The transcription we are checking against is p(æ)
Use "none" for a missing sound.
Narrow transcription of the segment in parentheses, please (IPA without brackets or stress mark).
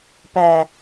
æ